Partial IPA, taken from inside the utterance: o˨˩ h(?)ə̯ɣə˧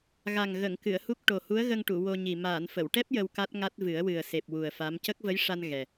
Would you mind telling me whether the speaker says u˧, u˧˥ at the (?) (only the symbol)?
u˧˥